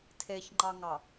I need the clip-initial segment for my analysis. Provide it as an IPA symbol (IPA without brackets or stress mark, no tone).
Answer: tʰ